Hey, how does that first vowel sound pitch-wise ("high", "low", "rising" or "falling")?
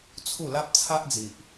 falling